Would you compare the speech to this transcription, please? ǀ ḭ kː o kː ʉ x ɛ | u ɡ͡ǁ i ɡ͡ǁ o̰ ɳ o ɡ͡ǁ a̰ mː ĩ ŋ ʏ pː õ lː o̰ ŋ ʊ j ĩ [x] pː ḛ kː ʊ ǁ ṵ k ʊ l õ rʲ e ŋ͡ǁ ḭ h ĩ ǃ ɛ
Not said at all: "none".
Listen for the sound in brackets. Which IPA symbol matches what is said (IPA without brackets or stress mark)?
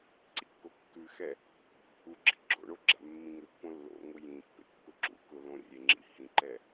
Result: none